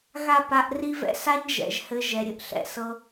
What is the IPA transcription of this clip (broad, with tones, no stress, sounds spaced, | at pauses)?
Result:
ɣ a˦˨ p a˧ ʔ r i˦ v ɛ̰˦ s a˦ ɲ ʒ ɛ̰˨ ʒ h ɘ˧ ʒ ɛ˨ ɾʲ ɘ˧ ʔ ɬ ɛ̰˧ s ɤ˦